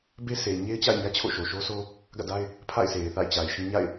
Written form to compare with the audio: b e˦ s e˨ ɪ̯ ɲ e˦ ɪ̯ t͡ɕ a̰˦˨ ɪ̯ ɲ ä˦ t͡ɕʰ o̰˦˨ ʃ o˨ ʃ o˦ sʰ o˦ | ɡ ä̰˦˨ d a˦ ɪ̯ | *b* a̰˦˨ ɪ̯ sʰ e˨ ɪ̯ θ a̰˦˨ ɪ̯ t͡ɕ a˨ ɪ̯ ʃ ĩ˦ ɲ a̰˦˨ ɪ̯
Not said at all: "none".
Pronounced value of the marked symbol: pʰ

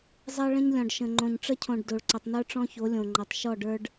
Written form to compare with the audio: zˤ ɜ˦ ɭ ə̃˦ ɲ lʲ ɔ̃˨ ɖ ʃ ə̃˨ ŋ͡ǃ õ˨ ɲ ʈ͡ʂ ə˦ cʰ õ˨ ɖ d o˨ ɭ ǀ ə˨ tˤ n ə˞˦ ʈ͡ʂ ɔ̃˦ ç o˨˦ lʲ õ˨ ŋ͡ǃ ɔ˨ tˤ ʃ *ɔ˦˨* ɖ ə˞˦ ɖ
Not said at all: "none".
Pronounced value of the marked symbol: ɔ˦˨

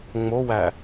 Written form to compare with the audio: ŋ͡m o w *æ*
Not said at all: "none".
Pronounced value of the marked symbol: æ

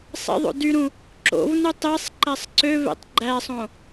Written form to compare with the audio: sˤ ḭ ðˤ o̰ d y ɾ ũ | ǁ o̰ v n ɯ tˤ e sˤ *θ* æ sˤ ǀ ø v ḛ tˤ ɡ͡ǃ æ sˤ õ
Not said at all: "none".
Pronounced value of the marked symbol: ǃ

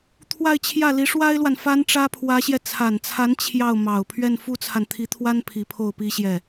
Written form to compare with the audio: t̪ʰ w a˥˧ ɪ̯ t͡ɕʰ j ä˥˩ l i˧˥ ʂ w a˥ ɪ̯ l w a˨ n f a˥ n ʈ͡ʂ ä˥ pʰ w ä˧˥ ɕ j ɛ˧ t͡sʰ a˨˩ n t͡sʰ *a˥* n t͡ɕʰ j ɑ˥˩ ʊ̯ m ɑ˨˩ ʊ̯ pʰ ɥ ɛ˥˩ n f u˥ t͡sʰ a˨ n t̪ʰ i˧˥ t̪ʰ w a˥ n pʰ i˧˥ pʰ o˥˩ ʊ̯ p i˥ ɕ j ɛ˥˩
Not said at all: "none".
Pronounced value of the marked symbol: a˧˥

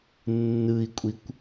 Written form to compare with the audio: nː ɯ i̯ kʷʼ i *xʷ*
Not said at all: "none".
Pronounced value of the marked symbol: kʷ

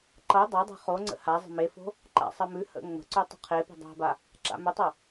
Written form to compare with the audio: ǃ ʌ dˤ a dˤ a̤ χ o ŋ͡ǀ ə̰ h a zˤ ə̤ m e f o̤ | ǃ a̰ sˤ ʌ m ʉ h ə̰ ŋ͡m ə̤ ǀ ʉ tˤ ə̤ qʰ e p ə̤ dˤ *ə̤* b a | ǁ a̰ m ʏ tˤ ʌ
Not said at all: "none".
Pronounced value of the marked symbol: a̤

